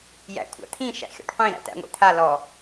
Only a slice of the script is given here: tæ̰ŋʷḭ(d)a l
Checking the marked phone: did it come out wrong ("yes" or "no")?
yes